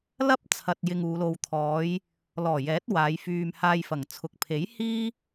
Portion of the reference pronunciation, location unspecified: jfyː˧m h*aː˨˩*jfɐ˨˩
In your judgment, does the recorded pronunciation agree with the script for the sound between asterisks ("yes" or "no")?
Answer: no